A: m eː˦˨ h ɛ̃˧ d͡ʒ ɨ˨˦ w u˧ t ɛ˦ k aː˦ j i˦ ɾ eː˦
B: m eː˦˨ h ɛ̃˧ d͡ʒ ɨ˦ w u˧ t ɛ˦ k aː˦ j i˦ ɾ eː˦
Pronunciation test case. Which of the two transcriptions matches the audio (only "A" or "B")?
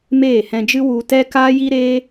B